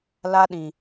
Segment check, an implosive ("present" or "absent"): present